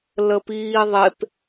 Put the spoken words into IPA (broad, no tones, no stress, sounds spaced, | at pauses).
l ə p iː ðˤ e p